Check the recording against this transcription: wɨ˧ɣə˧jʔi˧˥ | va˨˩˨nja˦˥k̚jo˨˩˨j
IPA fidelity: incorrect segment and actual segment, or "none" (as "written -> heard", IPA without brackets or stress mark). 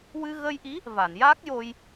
o˨˩˨ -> o˧